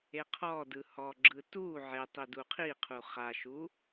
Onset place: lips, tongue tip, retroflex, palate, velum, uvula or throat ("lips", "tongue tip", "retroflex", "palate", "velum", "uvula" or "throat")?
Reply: uvula